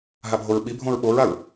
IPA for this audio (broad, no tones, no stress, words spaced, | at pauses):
ɦabʱoɹɓibʱõɹ ɓoɹaɹ